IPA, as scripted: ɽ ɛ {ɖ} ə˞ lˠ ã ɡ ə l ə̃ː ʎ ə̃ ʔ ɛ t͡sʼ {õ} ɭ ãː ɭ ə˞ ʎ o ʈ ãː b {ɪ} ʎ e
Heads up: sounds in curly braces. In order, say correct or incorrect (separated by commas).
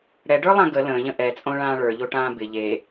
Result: correct, correct, correct